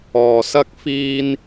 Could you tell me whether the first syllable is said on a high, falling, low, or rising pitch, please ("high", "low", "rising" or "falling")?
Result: low